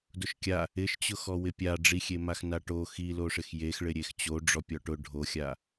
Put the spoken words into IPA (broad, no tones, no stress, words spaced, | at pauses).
dʊʃkʲa | ɪʃt͡ɕʊxɔ wɪpʲa ɖ͡ʐixʲemax naʈo xiloʂɪx jexɭɪ ɾʲext͡ɕo ɖ͡ʐɔpʲɔʈʊ ɖʱoxʲa